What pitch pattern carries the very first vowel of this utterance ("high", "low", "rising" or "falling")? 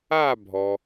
falling